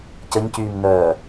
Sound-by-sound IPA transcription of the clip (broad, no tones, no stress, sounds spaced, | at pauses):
c ə ɲ c yː m n œː